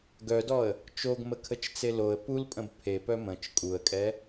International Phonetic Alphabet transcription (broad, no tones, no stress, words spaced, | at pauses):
ɡœdɔə̯ | t͡ʃoɡməkʰət͡ʃt͡se loə̯ pulpʼə̃b pʰepœ mə̃t͡ʃ kʼuə̯kʼɛ